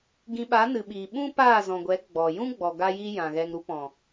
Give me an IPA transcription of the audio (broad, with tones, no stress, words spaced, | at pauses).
ɡĩ˧ɓa˨˦nɨ˨ɓiː˨ ɓũ˦paː˦˨zɔ̃˨ɡʷɛ˨˦ ɡ͡bɔ˨ jũ˦ɡ͡bɔ˨ ɡa˧jiː˧ jã˨ɣɛ˧ŋɾu˦ pɔ̃˨